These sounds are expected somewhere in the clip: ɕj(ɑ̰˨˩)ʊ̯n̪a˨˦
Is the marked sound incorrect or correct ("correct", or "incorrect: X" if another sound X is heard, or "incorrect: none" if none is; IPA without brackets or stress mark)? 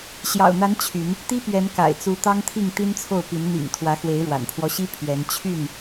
correct